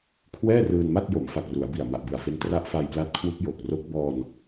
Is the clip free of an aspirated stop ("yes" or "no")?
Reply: no